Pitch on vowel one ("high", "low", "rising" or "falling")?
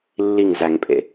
falling